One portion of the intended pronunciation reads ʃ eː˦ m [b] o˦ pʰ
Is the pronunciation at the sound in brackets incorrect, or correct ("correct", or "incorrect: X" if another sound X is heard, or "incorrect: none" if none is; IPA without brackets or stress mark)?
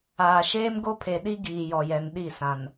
incorrect: ɡ